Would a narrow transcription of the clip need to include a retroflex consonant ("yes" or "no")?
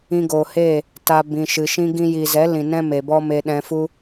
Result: no